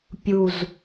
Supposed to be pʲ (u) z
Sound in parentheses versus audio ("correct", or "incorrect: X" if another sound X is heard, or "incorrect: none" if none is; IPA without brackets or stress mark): correct